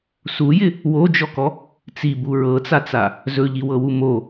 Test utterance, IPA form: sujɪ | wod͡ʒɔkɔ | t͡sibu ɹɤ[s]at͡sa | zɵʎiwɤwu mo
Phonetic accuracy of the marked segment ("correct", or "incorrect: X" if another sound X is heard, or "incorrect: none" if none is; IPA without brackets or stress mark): incorrect: t͡s